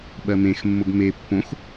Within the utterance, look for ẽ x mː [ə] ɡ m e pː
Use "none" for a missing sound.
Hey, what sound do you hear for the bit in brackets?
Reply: ʊ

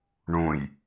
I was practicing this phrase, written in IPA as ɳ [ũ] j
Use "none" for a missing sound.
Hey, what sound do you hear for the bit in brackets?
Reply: ũ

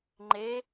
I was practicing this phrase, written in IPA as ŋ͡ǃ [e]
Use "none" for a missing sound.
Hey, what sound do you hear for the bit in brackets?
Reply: e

